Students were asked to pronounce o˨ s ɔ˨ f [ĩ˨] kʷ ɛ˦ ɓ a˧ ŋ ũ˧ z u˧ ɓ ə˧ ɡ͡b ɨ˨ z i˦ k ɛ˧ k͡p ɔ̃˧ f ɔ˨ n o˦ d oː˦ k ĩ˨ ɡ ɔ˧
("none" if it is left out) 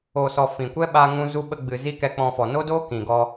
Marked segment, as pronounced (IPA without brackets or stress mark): ĩ˨